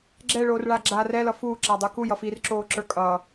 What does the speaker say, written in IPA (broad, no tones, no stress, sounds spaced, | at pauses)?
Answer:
ɡ͡ǁ ɛ ɭ oː r ɭ a ɡ͡ǁ a r ɛ l ʌ f u ǁ a dˤ ə˞ k u j ʌ f i r ǁ oː ǁ ə˞ kʼ ʌː